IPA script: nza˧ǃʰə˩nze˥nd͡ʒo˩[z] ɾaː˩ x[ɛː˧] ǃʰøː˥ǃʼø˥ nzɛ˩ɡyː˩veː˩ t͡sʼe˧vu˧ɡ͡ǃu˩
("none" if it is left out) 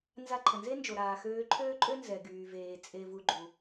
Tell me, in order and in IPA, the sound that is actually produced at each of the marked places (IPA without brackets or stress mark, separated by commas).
none, øː˧